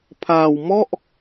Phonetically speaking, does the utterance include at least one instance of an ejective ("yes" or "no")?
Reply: no